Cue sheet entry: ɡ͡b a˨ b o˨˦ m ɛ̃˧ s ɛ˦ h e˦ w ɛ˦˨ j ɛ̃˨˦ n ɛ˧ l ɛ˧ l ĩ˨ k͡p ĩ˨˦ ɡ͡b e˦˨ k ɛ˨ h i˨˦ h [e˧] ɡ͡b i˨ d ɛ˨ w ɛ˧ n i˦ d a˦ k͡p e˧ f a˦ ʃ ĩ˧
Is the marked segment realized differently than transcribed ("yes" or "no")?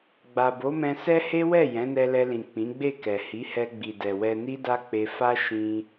yes